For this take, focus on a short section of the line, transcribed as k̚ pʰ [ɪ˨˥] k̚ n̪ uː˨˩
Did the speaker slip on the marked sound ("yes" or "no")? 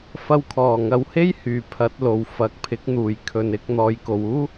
no